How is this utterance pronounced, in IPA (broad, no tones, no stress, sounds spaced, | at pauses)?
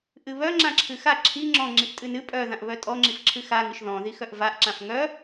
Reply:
ʔ ɨ β œ ŋ͡ǁ ã ǁʰ ɨ x a ǁʰ i ŋ͡ǁ ɔ̃ ŋ͡ǁ i ʔ tʼ ɨ n ɨ pʼ œ ð ã ʔ β œ tʼ ɔ ŋ͡ǁ i f ǁʰ ɨ x a ŋ ɨ ʃ ð ɔ̃ ð i x œ ʔ v a ʔ ǁ ã f ŋ œ